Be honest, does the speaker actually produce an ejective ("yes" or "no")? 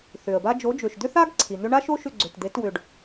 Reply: no